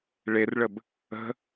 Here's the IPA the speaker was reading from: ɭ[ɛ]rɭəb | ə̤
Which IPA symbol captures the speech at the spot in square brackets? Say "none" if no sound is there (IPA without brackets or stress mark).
e